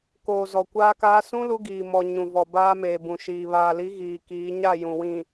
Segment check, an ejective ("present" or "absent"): absent